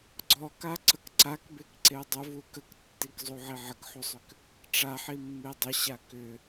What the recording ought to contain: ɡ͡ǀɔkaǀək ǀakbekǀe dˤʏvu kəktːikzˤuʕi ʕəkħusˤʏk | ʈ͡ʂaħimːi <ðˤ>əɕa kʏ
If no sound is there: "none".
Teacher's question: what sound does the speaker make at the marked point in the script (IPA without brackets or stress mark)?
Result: dˤ